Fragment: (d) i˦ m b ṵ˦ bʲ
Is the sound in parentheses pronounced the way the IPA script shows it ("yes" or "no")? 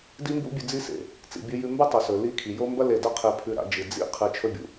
yes